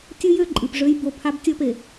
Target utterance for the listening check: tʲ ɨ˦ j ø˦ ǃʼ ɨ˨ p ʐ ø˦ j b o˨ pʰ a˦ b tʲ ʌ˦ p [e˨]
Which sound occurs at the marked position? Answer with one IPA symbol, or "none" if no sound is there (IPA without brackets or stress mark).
e˨